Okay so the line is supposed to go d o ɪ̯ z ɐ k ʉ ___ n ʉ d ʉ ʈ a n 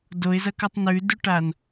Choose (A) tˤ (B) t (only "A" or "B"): A